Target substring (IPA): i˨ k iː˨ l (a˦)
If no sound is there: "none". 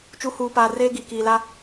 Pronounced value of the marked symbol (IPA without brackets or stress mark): a˦